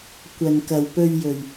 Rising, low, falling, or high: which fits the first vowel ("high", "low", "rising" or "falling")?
low